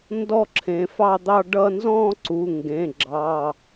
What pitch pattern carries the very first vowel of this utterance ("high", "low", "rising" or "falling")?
falling